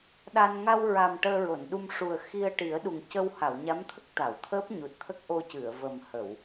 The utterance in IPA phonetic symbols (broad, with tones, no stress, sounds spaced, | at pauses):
ɗ a˧ n ŋ a˧ w ɹ a˨˩ m ʈ əː˧ ɹ o˨˩˨ n ɗ u˧ m ʂ u˨˩ ə̯ x i˧ ə̯ ʈ i˨˩˦ ə̯ ɗ u˨˩ ŋ c ə˧ w h a˨˩˨ w ɲ a˧˥ m t̪ʰ ə˦˥ k̚ t̪ a˨˩˨ w t̪ʰ əː˦˥ p̚ ɲ u˨˩ t̚ t̪ʰ ə˦˥ k̚ ʔ o˧ c ɨ˨˩˨ ə̯ v ə˨˩ m h ə˨˩˨ w